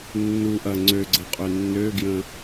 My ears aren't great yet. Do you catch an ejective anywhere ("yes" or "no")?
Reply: yes